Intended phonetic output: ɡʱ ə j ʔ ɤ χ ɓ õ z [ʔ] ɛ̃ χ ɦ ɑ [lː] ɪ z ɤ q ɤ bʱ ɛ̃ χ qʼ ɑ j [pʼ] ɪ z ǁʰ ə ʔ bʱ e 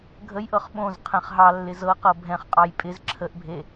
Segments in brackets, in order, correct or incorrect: incorrect: qʰ, correct, correct

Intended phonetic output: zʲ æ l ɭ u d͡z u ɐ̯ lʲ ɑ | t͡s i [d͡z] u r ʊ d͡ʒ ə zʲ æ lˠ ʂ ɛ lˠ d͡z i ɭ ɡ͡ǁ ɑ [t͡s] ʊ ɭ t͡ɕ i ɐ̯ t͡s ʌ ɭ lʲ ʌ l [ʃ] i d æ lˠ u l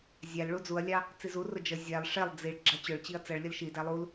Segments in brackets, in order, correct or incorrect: incorrect: z, incorrect: t͡ɕ, correct

